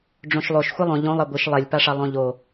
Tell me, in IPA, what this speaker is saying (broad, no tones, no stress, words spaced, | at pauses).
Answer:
ɖ͡ʐõʃlˠoʃ xʷɨlˠõ ʎõlˠ ɛɡʷɨʃ lˠɛlʲpaʂa lˠõʎo